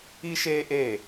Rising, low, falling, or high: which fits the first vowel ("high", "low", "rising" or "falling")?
high